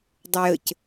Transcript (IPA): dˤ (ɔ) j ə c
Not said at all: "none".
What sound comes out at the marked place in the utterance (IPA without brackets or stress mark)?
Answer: ə